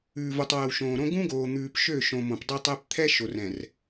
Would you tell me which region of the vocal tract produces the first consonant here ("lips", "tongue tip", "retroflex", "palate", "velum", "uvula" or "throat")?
lips